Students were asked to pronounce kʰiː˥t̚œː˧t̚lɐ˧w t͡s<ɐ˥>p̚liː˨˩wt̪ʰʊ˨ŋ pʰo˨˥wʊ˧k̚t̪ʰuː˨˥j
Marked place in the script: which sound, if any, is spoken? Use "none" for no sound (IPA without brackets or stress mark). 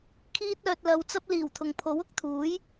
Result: ɐ˥